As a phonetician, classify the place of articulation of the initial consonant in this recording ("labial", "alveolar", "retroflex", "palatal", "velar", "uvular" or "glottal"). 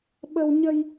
labial